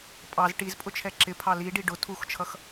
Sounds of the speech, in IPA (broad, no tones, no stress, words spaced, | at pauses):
pʼɑz ʈizpʼʊt͡ʃʰɛ ǁɪpʰɑ liɖi ɖʊ tʰuxt͡ʃʰʌx